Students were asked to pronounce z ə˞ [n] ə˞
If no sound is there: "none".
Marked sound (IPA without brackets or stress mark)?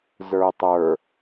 tˤ